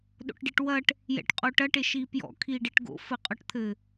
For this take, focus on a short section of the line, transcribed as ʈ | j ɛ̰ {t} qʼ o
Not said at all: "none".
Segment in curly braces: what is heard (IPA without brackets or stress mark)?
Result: ʈ